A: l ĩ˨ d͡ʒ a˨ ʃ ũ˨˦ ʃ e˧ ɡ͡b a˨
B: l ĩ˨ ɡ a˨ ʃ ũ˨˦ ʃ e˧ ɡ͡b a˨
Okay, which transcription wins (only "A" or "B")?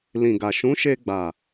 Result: B